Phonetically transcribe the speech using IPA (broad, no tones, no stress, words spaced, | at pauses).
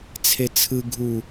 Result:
t͡sʰet͡sʰɯ ɡʱu